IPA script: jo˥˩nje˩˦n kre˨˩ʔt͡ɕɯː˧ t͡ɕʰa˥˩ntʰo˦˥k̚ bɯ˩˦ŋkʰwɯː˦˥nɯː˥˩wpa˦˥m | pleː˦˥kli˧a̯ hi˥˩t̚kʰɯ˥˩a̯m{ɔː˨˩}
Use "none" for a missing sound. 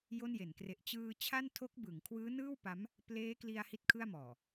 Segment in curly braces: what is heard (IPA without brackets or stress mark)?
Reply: ɔː˨˩